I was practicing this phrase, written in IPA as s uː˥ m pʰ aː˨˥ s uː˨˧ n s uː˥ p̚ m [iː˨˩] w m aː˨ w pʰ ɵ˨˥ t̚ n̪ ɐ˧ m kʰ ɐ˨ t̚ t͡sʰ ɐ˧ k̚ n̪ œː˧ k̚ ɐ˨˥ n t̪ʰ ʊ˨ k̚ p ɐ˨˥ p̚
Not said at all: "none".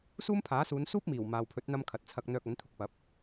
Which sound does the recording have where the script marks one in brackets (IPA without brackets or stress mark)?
iː˨˩